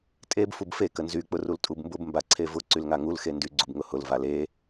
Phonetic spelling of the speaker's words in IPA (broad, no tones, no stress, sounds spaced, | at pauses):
tʼ e b f u b f e k ə n z y k͡p ʊ r u l tʼ u b m b ʊ b m b a ǀʰ e v ʊ ǀ y l ŋ a ŋ u l x e n d y ɡ͡ǀ u b ŋ ʊ h ʊ l v a l e